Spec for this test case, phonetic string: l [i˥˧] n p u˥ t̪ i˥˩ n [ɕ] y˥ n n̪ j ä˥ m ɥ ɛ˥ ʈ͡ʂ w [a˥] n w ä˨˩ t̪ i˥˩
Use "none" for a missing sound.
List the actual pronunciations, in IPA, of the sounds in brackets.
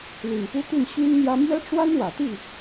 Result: i˨˩, ɕ, a˥

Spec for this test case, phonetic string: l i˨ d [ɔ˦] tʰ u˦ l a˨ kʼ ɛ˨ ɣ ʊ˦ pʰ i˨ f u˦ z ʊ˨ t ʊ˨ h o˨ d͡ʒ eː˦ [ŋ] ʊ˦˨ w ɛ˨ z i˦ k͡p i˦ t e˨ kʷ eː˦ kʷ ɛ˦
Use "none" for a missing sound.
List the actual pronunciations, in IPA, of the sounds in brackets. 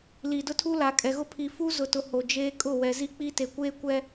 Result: ʊ˦, kʼ

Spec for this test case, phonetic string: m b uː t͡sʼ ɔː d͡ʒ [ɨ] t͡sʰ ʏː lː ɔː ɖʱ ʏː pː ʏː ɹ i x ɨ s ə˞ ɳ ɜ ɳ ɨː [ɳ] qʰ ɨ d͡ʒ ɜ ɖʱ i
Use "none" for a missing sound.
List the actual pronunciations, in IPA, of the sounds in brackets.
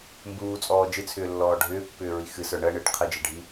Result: ɨ, ʈ

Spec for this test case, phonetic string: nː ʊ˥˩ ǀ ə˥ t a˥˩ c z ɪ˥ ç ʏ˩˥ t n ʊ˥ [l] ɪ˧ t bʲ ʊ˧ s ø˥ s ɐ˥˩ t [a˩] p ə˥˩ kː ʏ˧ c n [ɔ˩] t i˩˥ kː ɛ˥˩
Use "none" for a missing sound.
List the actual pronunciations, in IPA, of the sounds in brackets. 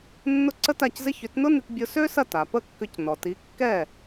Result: n, a˩, ɔ˩

